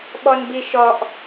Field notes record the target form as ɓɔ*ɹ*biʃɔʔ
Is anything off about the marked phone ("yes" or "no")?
yes